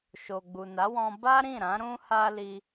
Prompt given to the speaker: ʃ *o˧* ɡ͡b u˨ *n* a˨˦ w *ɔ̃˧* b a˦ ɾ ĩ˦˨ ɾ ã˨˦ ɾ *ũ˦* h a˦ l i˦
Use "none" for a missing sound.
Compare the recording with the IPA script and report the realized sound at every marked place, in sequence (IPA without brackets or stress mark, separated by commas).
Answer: o˨, n, ɔ̃˧, ũ˦